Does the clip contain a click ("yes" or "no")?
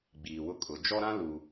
no